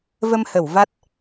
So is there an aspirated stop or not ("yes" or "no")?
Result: no